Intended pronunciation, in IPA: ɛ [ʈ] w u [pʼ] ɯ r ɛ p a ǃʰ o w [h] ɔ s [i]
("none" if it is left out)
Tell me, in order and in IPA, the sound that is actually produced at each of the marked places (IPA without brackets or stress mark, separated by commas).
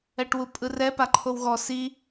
ʈ, pʼ, ɣ, i